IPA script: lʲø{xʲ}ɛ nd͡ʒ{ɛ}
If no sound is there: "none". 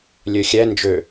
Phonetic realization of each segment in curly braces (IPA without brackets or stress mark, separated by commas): xʲ, ø